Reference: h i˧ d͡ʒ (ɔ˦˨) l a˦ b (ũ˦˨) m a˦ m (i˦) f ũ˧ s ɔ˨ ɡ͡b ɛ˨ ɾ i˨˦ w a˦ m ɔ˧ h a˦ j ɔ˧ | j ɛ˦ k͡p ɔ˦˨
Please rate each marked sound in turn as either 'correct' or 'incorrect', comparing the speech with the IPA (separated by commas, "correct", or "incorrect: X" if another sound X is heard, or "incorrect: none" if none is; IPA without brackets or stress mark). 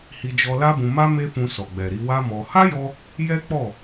incorrect: ɔ˧, incorrect: ũ˧, incorrect: e˦